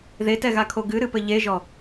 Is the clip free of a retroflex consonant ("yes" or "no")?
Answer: yes